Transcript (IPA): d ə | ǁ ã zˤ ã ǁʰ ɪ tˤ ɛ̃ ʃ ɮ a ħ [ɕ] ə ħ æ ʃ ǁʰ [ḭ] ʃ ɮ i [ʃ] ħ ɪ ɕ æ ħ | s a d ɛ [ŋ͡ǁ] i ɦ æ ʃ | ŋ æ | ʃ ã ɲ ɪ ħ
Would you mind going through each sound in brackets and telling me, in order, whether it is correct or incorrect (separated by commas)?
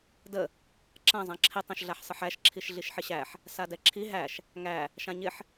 incorrect, incorrect, correct, incorrect